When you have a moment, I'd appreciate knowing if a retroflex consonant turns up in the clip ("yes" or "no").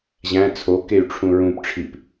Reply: yes